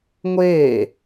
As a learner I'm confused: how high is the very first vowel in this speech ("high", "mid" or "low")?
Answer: mid